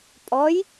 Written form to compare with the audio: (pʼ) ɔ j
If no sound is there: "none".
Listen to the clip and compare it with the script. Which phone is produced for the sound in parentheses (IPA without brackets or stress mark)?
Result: pʼ